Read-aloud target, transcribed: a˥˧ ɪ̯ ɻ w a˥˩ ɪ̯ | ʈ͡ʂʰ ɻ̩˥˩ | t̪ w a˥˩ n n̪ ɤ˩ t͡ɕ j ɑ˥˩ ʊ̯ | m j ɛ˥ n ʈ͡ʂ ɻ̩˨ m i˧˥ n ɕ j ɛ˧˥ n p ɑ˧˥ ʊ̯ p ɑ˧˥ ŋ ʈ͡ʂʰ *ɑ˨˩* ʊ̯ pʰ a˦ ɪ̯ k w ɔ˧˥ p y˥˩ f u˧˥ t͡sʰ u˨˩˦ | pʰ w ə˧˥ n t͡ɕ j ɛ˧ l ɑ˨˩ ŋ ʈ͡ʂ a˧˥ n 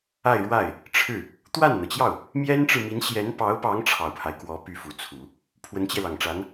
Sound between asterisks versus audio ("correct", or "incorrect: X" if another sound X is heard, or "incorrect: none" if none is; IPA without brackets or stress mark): correct